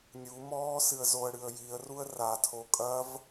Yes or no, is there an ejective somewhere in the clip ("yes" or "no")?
yes